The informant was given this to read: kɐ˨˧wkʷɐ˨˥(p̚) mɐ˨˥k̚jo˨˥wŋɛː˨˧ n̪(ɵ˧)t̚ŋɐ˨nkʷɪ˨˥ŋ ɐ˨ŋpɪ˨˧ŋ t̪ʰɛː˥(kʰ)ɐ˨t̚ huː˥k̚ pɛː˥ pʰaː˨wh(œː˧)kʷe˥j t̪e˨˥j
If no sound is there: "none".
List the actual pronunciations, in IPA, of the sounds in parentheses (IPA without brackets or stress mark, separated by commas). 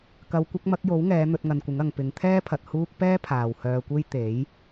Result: k̚, ɵ˧, pʰ, œː˧